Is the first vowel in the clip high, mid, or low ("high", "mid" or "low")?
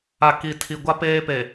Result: low